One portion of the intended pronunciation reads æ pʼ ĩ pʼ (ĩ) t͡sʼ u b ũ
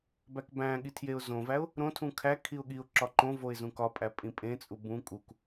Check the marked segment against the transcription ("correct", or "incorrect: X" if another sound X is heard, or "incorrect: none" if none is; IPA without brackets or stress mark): incorrect: ẽ